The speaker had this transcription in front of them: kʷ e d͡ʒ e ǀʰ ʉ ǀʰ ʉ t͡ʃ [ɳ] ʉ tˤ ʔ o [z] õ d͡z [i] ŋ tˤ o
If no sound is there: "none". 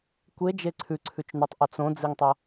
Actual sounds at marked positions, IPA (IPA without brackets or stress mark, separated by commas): n, t͡s, i